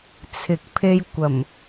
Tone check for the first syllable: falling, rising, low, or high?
low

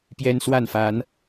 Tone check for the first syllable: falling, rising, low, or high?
high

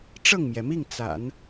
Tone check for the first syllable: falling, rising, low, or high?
falling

